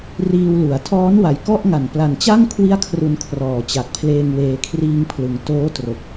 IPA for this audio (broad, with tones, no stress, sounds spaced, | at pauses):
r iː˧ w l u˩˦ a̯ tʰ ɔː˦˥ n w a˨˩ j k ɔ˥˩ ʔ ŋ a˨˩ n p l a˨˩ n t͡ɕ a˥˩ ŋ kʰ w i˥˩ a̯ kʰ r u˧ n kʰ r ɔː˩˦ t͡ɕ a˨˩ k̚ pʰ l eː˧ ŋ w eː˨˩ kʰ r iː˧ ŋ pʰ l ɯ˩˦ ŋ t oː˦˥ t r o˨˩ k̚